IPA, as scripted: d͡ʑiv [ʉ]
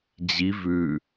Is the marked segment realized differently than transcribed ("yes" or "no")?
no